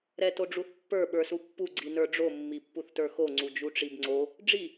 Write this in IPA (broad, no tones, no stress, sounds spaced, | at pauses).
ɾ ɛ t o ɖ͡ʐ u θ pː ə˞ ɓ ə˞ s u pː u ɡ͡ǀ i n ə˞ ɖ͡ʐ o mː i pː u θ t ə˞ x o ŋ͡ǀ u d͡ʒ u ʈ͡ʂ i b ŋ͡ǀ o | ɖ͡ʐ i